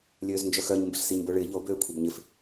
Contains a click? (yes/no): no